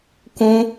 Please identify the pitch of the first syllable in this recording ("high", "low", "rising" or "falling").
high